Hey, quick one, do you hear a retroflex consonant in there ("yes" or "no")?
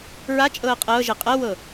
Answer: no